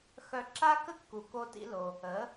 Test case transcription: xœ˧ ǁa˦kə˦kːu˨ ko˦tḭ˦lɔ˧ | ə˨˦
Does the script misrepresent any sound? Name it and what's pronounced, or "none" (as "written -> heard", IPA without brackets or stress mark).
ɔ˧ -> o˧